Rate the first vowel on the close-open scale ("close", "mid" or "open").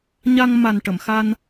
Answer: open